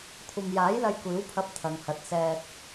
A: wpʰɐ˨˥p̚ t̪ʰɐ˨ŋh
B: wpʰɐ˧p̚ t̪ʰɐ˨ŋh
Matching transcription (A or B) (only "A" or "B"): B